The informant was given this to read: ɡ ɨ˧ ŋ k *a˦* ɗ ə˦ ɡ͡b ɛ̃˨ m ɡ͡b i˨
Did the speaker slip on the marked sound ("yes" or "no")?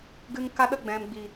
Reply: no